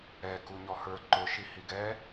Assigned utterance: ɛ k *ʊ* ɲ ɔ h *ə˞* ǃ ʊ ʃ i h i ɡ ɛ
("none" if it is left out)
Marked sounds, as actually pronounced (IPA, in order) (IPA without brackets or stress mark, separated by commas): u, ə˞